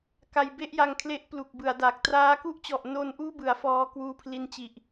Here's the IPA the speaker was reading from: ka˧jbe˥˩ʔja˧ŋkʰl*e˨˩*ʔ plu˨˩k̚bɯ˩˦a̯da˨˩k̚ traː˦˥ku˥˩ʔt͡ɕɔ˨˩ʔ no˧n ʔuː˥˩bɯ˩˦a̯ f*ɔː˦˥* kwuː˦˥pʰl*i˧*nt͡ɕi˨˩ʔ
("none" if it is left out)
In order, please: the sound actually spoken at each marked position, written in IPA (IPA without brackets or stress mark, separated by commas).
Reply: e˦˥, ɔː˦˥, i˧